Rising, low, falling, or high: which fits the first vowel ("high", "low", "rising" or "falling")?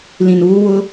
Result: low